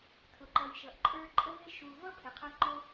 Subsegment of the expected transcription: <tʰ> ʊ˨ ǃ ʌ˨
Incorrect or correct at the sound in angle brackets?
correct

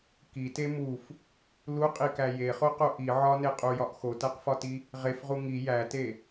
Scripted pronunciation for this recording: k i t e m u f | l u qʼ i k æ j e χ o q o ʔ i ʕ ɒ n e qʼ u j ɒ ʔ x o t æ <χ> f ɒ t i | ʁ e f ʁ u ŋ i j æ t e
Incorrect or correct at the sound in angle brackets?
incorrect: q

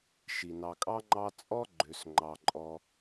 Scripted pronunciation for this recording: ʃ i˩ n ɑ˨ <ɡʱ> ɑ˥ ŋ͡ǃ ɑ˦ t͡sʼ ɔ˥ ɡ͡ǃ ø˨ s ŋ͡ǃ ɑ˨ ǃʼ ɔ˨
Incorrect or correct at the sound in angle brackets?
incorrect: kʼ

